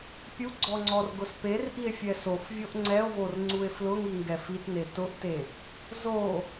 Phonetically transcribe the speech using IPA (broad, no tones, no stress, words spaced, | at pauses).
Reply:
pʲuɡ͡ǀɔŋ͡ǀɔrɡʊs perʔie̯fʲɛ sofvʲoʔ ŋ͡ǀɛo̯vorŋ͡ǀue̯ flʊŋiŋɡɛ fitne tʊʔte | zo